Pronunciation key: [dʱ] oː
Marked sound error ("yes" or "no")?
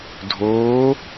no